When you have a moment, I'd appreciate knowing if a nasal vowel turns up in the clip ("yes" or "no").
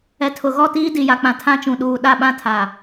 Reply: yes